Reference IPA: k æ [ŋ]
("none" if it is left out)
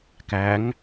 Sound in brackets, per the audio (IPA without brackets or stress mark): ŋ